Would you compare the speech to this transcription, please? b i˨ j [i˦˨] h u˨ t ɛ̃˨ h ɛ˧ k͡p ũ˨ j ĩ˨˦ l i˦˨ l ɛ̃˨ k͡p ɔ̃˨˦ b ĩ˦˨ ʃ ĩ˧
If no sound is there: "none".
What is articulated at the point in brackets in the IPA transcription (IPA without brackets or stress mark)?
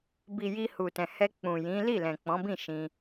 i˧